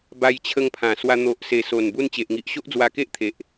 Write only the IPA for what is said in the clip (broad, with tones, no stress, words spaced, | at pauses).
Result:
ba˧jt͡ɕʰə˧ŋpʰã˨˩swa˧ n̪o˨ʔse˨˩ so˨˩nbu˧n t͡ɕe˨ʔŋi˨ʔɕo˦ʔ d͡zwa˧ke˦ʔ t̪ʰe˨ʔ